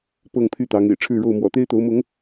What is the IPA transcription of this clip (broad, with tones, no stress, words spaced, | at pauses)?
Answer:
pɤ˥˨ŋpʰy˥˨t̪ɑ˨˦ŋ ḛ˨˩ɪ̯ʈ͡ʂʰɻ̩˥˨ɻo˥˨ʊ̯ mwɔ̰˨˩t̪e˦ɪ̯t̪o˨˦ʊ̯mʊ˨˦ŋ